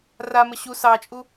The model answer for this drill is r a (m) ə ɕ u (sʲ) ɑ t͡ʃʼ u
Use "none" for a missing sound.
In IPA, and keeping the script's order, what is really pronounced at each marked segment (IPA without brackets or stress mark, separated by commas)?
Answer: m, s